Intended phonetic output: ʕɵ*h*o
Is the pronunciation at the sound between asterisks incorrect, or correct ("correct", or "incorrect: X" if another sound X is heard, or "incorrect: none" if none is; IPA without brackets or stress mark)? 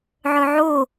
incorrect: ʕ